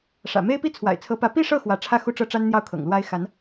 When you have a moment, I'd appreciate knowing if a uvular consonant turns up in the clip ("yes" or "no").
no